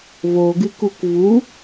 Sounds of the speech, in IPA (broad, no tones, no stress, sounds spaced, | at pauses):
v o ɡ ɨ k u k v u